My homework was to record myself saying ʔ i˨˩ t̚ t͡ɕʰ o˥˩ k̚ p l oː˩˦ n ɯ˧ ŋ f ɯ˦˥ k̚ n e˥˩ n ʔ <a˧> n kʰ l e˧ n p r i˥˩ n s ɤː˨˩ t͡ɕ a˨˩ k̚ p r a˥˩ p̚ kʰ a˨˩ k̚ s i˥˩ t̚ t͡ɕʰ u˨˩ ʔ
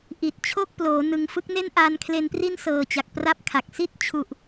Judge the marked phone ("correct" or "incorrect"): correct